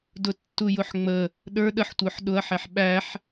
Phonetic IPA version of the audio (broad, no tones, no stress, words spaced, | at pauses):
dʊtːujʊħŋ͡mə | ɗə˞ ɗəħtʷə˞ħ ɗʊɐ̯ħæħ ɓæħ